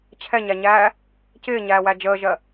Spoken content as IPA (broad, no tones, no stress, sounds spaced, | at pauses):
t͡ɕʰ ɛ ɲ æ ɲ æː | c ɪː ɲ æː w æ d͡ʒ əː ʒ ɜ